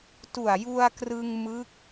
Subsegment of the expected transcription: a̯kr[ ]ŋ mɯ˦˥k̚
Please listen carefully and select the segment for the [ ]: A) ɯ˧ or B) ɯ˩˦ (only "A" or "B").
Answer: A